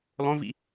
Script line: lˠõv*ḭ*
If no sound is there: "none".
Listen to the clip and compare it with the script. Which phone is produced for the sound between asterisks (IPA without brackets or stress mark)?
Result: ḭ